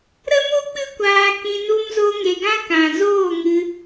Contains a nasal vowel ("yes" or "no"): yes